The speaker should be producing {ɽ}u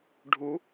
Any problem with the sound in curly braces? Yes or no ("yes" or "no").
yes